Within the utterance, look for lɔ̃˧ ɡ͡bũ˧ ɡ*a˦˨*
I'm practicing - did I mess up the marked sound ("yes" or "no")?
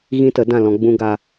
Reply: yes